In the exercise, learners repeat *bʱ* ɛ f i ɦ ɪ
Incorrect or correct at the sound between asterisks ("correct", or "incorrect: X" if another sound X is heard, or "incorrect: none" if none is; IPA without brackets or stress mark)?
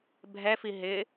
correct